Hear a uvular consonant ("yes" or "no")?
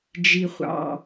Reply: yes